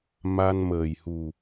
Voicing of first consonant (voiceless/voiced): voiced